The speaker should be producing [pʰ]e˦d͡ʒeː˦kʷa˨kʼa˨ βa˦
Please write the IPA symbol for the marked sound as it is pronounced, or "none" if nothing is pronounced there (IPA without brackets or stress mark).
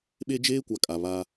ɓ